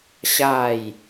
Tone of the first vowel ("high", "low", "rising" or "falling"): falling